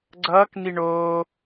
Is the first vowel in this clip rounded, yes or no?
no